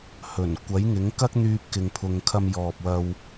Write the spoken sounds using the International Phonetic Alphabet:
h ɵ˨˩ n kʷ ɐ˨˥ j ŋ ɪ˨˥ ŋ k ɐ˥ k̚ n̪ yː˧ p̚ k ɪ˨ ŋ pʰ ʊ˨ ŋ kʰ ɐ˧ m j ɔː˨ p̚ w ɐ˧ w

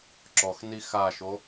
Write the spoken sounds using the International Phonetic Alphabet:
ǁ ɔ x n i x a ʃ o

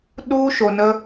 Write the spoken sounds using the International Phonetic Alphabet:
ɗ u˦ ʃ o˨ n ə˦

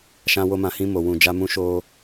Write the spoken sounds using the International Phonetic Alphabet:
ʃ ã˧ w o˧ m ã˨ h ĩ˧ m o˨ w ũ˨ d͡ʒ a˧ m ũ˧ ʃ o˧

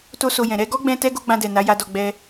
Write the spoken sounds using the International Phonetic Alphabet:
t o˦ s o˧ j ɛ̃˨ ɾ ɛ˧ ɡ ɔ˦ ɡ͡b ɛ̃˦ t ɛ˦ ɡ o˦ ɡ͡b ã˧ d ɛ˨ n a˨˦ j a˧ d ɔ˧ ɡ͡b ɛ˧

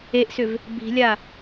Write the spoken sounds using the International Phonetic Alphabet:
e ʔ s ʏ v | b i̤ lʲ a

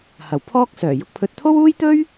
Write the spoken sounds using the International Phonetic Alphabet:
h ɐ˨˩ w pʰ ɔː˥ k̚ s œː˨˩ j ʊ˧ k̚ pʰ ɵ˧ t̚ t̪ʰ o˥ w uː˥ j t̪ ɵ˥ ɥ

